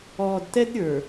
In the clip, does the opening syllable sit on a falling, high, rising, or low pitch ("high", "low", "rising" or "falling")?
low